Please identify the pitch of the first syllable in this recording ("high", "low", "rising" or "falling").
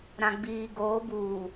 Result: low